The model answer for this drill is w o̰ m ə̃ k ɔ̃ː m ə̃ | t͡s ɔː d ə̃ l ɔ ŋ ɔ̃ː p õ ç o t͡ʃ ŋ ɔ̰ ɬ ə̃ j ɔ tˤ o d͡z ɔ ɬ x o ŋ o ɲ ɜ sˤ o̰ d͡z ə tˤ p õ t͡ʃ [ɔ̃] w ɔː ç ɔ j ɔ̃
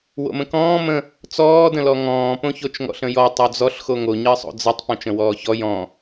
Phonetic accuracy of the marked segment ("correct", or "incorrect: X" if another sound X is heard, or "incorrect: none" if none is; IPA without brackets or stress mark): incorrect: ə̃